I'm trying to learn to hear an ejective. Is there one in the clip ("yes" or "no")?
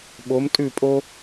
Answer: yes